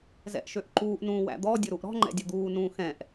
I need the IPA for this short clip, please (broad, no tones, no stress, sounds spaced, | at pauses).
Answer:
z ɛ̰ ʔ ʃ ø ʔ ǃ uː ʔ n ũː w æ̰ d̪ ɔ dʲ ʊ ɾ u ʔ ɾ ɔ̤ ŋ͡ǃ ɛ̰ dʲ ʊ d̪ uː n ũː x ɛ̃ ʔ